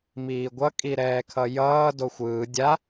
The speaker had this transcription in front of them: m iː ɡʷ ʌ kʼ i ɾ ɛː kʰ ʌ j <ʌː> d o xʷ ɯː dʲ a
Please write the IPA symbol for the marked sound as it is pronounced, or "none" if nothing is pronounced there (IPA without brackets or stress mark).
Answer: ʌː